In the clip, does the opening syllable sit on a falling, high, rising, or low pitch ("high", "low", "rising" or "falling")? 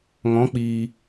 rising